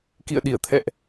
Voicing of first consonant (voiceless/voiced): voiceless